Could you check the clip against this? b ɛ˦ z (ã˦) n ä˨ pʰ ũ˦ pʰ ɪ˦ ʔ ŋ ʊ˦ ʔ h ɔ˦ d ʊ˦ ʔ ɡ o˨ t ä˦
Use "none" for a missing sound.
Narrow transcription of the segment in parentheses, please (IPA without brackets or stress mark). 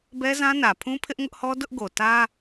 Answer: ã˦